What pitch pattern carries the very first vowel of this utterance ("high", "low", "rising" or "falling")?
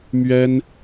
high